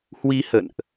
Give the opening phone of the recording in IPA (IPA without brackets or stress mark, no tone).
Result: h